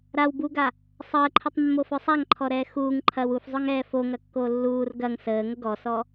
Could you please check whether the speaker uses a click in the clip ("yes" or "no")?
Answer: yes